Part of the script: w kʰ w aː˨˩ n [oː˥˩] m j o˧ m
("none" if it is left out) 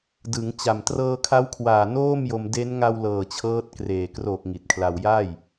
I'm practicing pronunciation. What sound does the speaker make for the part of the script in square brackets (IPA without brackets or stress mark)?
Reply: oː˥˩